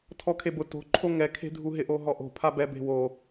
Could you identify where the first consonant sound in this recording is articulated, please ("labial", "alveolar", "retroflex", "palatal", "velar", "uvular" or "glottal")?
alveolar